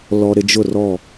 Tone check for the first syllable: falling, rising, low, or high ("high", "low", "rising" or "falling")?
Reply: low